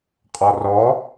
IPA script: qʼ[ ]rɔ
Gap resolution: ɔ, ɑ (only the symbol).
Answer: ɔ